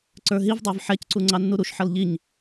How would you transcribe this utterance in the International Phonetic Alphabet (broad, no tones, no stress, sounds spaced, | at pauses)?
ǀ ə˞ ɦ i v dˤ ə˞ v ħ ɛ c ǀ u ŋ͡ǀ ɑ nː u ɾ u ʃ ħ ʌ l ʎ i ɲ